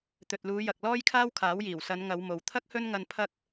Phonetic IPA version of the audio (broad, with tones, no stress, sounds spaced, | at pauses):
t̪ ɵ˨ t̚ l uː˨˧ j ɐ˨ k̚ l ɔː˥ j kʰ aː˥ w kʰ aː˨˥ w j iː˨˩ w s ɐ˨˧ n ŋ ɐ˨˧ w m o˨ w t̪ʰ ɐ˥ k̚ h ɵ˥ n ŋ ɐ˧ n pʰ ɐ˥ k̚